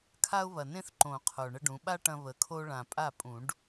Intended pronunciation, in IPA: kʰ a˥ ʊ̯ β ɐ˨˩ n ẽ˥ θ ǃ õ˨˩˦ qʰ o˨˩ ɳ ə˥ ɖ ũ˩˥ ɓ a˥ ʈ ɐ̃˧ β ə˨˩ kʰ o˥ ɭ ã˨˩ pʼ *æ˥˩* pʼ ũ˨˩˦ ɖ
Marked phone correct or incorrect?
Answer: incorrect